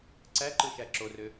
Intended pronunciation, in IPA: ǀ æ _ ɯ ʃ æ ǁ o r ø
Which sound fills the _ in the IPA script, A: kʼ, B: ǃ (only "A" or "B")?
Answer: B